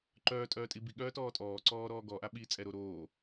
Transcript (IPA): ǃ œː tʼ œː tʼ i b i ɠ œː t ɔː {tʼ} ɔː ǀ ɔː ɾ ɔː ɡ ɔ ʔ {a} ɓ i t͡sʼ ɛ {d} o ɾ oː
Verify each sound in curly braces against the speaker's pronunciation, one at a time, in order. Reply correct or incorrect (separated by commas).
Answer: correct, correct, incorrect